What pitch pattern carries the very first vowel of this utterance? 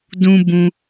high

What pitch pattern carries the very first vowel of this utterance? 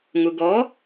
low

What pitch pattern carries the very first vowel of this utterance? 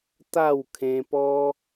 falling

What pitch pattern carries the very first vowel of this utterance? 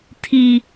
high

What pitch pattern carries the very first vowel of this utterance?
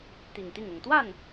low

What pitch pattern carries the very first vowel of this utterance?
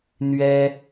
high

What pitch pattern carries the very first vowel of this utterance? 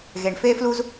low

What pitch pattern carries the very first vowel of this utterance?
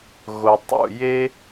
low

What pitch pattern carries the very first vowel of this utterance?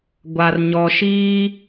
low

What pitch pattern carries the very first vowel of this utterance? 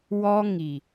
high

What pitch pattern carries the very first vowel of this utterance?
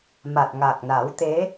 low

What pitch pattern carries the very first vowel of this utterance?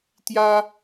high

